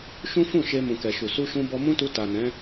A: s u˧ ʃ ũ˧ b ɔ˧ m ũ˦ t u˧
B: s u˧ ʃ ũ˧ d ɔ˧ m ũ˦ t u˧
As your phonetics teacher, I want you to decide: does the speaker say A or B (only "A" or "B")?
A